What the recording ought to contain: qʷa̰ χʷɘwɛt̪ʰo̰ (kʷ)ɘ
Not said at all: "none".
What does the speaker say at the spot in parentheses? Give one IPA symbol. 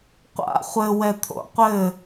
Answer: qʷ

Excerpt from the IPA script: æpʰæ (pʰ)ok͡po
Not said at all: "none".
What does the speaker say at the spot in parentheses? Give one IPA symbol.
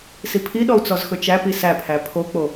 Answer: pʰ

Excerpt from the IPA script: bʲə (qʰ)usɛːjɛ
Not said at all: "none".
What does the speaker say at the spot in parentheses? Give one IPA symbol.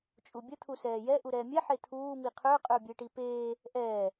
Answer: t̪ʰ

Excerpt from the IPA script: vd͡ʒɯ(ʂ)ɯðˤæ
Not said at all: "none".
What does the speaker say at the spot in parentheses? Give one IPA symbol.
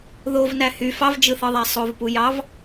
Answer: θ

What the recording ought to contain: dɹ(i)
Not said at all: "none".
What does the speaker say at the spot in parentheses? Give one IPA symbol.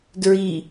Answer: i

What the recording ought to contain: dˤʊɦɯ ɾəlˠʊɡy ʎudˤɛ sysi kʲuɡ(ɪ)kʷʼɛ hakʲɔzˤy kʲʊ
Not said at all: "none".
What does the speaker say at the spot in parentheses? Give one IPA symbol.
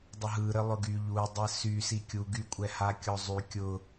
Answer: y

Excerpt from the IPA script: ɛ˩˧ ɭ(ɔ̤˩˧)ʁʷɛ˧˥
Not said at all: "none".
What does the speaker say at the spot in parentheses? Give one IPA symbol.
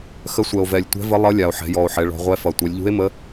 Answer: ɔ̤˩˧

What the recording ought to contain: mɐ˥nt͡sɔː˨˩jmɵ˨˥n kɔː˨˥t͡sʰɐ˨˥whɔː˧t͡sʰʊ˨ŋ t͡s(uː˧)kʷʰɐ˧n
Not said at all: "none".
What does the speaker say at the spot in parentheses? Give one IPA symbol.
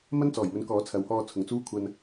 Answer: uː˥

